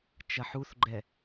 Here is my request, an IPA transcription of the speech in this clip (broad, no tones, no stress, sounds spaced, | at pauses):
t͡ʃ ɐ ħ u θ ɡ͡ǃ ɛ